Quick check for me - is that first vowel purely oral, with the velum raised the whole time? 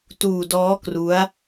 yes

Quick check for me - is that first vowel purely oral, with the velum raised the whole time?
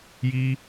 yes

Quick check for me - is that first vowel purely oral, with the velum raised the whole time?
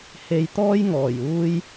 yes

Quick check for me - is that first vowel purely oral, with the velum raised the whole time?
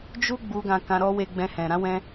yes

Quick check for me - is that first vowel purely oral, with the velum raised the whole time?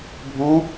no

